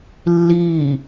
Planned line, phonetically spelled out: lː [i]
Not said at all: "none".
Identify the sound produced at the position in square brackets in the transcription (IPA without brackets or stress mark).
iː